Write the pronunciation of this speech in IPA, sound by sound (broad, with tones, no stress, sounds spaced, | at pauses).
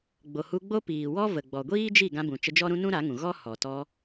ɡ͡b o˨ h u˧ ɡ͡b o˦ p iː˨ w ɔ˦ v ə˨ ɡ͡b ɔ˨ ɡʷ iː˦ d͡ʒ i˦˨ ɡ ã˧ b ũ˨ t͡ʃ ə˧ d͡ʒ ɔ˦ ɾ ũ˦ n ũ˦ ɾ a˨˦ ŋ ũ˨ ɣ ɔ˦ h ɔ˨ t ɔ˧